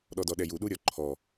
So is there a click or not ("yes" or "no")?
yes